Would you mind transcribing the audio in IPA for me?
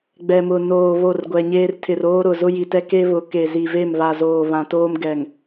ɡ͡b ɛ˨ m ʊ˨ n oː˨ β o˦˨ r ɡʷ ɛ˨ ɲ eː˦ r tʰ ɪ˨ r oː˦ ɾ ʊ˨ z ʊ˦ j i˨ t ɛ˦ k e˦ β ʊ˨˦ k e˨ z i˨ v e˦˨ m β a˨ z oː˨ β ã˨ t oː˦ m ɡ ɛ˨ ŋ

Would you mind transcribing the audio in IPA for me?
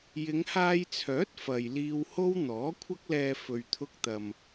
j ɪ˨˧ ŋ h aː˧ j t͡sʰ œː˨˥ t̚ f ɐ˨ j l iː˧ w h o˥ w n̪ ɔː˨˥ kʷʰ ɐ˥ k̚ l ɛː˧ f ɵ˨ ɥ t̪ʰ ʊ˧ k̚ t̪ ɐ˨ m

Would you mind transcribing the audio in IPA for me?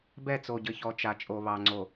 b ɛ˦˨ t͡s o˨ ɟ ɘ˨ ç ɔ˨ t͡ʃ a˨ t͡ʃʼ o˨ β ɑ˨ ŋ͡ǀ o˨

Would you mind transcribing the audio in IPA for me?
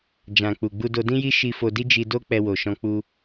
d͡ʒ ã˨ k͡p u˨ ɡ͡b u˧ d o˧ d ĩ˦ j i˦ ʃ i˧ f o˧ d i˦ d͡ʒ i˧ d o˦ k͡p ɛ˧ w o˨ ʃ ɔ̃˧ k͡p u˦

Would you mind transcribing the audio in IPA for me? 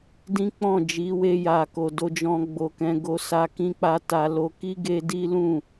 d ĩ˦ k͡p ɔ̃˦˨ d͡ʒ i˨˦ w e˧ j a˨ k o˨ d o˧ d͡ʒ ɔ̃˧ ɡ͡b o˨ k ɛ̃˨˦ ɡ o˧ s a˧ k ĩ˦ k͡p a˦ t a˧ l o˧ k i˦ ɡ e˦ d i˦ l ũ˦˨

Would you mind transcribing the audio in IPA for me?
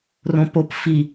r õ p o p f i

